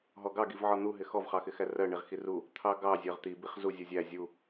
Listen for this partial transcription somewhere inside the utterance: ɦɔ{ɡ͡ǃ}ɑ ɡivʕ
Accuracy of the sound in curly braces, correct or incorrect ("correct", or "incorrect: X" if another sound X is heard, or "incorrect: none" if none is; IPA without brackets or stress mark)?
incorrect: ɡ